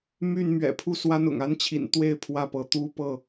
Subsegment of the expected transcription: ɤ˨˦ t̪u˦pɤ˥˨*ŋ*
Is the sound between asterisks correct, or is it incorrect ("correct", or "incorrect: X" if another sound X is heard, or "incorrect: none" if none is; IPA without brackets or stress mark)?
incorrect: none